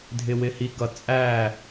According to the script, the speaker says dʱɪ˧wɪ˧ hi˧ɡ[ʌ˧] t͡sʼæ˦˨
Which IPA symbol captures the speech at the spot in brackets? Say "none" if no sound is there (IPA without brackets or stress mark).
ʌ˧